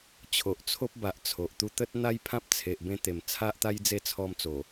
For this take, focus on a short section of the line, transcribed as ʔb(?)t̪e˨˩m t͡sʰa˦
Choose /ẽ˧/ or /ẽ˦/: ẽ˧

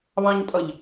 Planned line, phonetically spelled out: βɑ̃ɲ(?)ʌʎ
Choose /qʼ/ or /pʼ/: pʼ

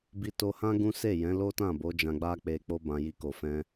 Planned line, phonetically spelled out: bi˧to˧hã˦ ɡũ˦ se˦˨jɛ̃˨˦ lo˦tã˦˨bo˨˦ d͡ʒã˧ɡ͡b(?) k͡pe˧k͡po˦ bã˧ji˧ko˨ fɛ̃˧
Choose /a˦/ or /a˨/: a˦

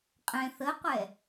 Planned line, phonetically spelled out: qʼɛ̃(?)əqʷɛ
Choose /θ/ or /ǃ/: θ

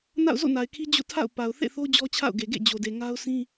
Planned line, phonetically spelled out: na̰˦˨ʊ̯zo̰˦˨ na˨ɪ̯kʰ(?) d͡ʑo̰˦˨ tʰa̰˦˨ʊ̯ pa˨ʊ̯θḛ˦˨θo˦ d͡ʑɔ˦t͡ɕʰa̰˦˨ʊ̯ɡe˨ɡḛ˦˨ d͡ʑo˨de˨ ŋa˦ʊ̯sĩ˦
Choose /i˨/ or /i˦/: i˦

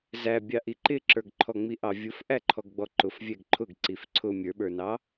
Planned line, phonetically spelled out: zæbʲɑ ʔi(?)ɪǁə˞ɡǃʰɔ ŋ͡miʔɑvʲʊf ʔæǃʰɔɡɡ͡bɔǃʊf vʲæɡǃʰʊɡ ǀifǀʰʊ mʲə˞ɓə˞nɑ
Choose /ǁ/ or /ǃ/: ǃ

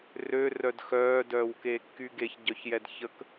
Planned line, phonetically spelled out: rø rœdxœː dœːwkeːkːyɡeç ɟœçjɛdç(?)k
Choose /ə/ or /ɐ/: ə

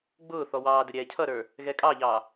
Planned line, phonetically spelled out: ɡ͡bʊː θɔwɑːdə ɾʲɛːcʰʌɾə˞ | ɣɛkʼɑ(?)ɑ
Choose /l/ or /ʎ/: ʎ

